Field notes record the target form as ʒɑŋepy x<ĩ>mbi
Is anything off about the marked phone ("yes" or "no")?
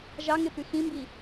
no